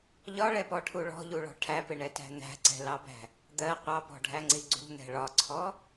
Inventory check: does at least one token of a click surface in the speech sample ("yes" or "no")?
yes